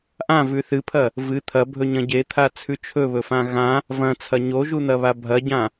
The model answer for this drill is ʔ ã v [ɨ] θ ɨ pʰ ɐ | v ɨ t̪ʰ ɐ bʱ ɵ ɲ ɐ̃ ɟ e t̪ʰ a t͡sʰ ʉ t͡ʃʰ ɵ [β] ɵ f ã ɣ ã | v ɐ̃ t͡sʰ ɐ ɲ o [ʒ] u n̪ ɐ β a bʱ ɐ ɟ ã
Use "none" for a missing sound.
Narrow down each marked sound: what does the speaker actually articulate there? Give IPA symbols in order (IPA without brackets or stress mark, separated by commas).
ʉ, β, ʒ